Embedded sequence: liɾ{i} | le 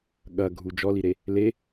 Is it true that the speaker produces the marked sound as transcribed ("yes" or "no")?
no